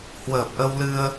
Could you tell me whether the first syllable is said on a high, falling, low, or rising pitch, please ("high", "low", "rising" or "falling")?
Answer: low